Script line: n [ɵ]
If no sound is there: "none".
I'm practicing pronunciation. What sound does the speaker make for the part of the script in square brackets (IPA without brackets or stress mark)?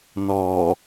ɔ